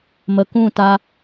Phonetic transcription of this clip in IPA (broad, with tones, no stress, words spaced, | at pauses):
mə˨kũ˦˨ta˧